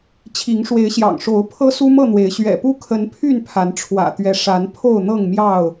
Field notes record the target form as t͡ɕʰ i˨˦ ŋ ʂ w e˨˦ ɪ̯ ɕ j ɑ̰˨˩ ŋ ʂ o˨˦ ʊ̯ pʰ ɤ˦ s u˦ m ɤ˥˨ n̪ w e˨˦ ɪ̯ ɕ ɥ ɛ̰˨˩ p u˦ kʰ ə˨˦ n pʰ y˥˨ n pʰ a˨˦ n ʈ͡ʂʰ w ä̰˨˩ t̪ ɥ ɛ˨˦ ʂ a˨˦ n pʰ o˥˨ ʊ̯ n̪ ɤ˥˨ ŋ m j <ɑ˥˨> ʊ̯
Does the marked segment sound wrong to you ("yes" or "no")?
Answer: no